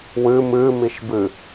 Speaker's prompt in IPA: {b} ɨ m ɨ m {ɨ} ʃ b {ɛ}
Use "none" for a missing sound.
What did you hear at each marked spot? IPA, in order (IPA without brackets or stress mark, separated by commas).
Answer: w, i, ɨ